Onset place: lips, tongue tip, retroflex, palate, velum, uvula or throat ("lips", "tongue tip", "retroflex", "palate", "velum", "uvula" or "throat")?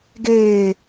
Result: velum